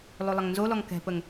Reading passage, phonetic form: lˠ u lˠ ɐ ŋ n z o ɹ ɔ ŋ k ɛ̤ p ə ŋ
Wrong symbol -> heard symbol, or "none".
ɹ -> l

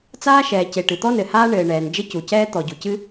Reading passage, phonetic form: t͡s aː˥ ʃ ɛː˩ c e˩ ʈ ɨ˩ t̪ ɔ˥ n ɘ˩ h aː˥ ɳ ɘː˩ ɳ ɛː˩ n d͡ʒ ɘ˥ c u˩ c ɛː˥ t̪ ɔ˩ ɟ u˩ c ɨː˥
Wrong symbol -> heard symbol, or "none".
ɨː˥ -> ɨ˥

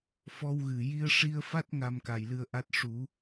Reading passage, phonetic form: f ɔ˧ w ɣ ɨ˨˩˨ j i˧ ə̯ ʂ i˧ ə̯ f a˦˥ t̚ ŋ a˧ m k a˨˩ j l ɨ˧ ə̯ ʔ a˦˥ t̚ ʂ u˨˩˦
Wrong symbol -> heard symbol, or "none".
none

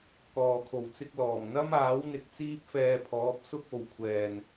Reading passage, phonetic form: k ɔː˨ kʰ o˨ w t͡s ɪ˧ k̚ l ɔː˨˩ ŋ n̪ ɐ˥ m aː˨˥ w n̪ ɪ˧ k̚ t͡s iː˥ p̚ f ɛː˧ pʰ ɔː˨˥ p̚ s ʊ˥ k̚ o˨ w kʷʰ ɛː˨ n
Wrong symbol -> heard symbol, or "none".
none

